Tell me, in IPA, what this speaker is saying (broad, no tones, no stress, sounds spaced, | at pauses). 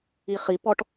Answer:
i χ i p ɔ ʈ